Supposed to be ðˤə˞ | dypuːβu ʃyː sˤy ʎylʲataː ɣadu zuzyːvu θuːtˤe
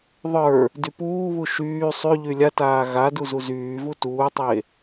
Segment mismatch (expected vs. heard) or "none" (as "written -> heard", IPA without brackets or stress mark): θ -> t